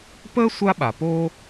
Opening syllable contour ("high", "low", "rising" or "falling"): high